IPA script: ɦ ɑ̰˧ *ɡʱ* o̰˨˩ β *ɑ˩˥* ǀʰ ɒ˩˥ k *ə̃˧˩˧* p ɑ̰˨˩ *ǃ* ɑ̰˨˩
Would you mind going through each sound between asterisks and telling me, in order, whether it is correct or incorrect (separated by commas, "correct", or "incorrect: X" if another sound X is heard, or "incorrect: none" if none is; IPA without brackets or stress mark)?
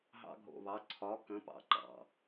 correct, correct, incorrect: ə̃˩˥, correct